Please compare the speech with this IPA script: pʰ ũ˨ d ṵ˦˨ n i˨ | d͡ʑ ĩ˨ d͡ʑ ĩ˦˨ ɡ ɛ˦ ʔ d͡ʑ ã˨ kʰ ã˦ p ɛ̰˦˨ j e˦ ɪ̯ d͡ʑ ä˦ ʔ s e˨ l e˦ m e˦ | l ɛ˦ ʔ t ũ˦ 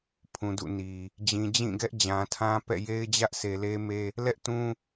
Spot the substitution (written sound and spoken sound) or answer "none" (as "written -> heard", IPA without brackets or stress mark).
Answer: kʰ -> tʰ